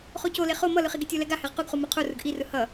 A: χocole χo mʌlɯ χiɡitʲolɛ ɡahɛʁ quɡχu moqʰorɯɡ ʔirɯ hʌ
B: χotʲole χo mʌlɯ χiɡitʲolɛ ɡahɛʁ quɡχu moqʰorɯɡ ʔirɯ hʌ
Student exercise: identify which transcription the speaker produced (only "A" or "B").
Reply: A